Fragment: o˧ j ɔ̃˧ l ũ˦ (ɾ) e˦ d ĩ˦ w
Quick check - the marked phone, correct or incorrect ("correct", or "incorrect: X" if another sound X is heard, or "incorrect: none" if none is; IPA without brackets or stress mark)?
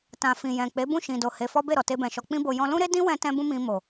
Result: correct